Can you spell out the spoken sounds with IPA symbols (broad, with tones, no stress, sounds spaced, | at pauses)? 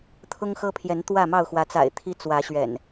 t̪ʰ ʊ˦ ŋ x ɤ˦ pʰ j ɛ˨˦ n t̪ w ä˥˨ m ɑ˥˨ ʊ̯ x w ä˨˦ t͡s a̰˨˩ ɪ̯ t̪ʰ i˦ t͡s w ä˨˦ ɕ ɥ ɛ̰˨˩ n